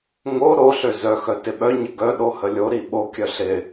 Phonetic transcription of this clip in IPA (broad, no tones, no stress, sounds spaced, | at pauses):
ŋ o ɾ o ɬ ø z œ x œ t ɪ ɓ œ ɲ ə ɡ œ ɗ o h ə lʲ o ɾ i ɓ o kʲ œ ɬ ɪ